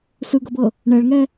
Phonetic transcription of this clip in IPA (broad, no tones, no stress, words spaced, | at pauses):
sɯɡɤbɤ | ɳɛɭŋɛ